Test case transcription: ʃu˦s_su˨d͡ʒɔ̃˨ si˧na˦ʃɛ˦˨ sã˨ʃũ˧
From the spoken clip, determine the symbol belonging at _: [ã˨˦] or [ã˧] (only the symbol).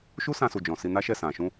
ã˧